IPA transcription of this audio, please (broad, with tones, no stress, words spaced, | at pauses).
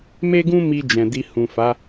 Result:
me˦ɡũ˦ mi˧ d͡ʒɛ̃˨di˧ hũ˨fa˨˦